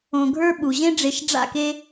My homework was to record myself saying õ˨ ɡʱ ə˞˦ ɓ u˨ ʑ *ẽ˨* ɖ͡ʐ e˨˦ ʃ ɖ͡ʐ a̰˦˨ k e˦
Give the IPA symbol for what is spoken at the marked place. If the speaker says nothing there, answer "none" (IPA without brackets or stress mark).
ẽ˦